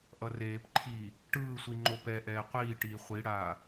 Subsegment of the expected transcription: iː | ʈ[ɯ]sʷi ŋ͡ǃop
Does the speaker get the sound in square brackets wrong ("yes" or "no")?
yes